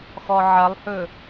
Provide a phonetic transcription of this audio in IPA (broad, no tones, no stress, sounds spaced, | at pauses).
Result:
x ɔ ʕ ɐ lˠ h ɵ